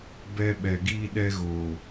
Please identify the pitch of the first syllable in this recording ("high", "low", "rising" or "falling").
high